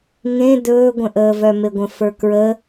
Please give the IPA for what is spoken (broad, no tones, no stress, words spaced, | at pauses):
ŋẽ dɵːɡʷə̃ʔəːvœ meɡʷə̃fə˞kɹə